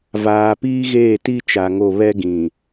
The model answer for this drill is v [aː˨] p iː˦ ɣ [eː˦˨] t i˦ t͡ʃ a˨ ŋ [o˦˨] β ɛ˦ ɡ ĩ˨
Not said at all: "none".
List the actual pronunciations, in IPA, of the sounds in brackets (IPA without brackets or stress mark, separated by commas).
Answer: aː˨, eː˦˨, o˦˨